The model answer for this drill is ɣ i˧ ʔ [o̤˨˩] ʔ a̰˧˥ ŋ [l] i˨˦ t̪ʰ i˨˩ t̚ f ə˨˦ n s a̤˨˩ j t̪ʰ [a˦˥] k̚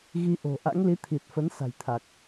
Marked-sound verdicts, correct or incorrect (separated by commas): correct, correct, incorrect